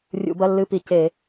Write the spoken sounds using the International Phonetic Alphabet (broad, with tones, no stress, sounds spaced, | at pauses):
rʲ ṵ˧˩˧ b ɐ˧˥˧ lː ɨ˧˥˧ p i˧˩˧ c e˧˩˧